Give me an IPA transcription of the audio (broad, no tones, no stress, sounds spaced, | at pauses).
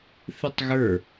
θ ɨ tˤ ɣ ə˞